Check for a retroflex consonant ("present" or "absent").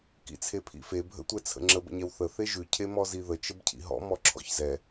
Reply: absent